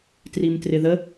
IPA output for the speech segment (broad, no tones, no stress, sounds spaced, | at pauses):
t r i m t r ɪ ð ə